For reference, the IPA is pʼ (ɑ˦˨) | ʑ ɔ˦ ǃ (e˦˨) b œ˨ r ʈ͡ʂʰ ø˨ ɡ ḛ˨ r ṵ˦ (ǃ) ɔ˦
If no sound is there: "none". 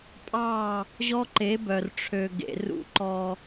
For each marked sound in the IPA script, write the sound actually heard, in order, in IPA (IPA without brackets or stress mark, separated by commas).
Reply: ɑ˦˨, e˨˦, ǃ